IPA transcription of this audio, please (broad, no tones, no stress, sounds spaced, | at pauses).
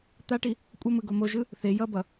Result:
t̪ a ʈ i | kʷʼ ʌ m ɯ ɡ o m o ʒ ɯ | θ e j ʌ b ʌ